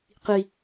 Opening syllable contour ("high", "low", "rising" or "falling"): low